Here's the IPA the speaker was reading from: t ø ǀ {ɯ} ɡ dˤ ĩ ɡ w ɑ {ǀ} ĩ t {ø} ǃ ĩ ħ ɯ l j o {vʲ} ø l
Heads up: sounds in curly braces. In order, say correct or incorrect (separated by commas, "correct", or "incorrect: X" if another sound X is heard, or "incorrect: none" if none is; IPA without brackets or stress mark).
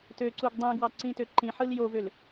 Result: incorrect: u, correct, correct, incorrect: v